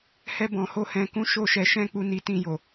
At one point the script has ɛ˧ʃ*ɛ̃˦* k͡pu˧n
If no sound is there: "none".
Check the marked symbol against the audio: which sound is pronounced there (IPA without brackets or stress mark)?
ɛ̃˦